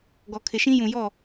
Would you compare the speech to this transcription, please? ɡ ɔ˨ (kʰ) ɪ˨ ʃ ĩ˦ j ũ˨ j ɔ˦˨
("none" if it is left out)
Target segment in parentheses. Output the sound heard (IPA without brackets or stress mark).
kʰ